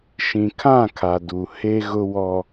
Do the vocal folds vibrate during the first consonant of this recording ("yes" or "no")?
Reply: no